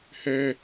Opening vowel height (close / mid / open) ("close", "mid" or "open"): mid